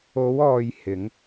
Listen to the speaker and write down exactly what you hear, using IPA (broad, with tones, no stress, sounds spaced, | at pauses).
o˨˧ w ɔː˨ j h ɪ˨˧ ŋ